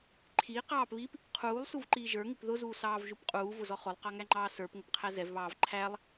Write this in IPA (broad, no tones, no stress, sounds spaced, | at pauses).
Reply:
ǃʰ iː q ɑː p β iː p | qʰ uː lˠ s u v ǃ iː ʒ ə˞ ŋ ɪ p ð ʊ z uː s ɑː v ʒ u p qʼ uː v ʊ z ɔ χ ʊ lˠ q ɑ ŋ æ ŋ͡ǃ ɑː s ə˞ p ŋ ʊ p qʰ æ z ɛ v β ɑː v ǃʰ æ lˠ